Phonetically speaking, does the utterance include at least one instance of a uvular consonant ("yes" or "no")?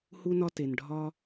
no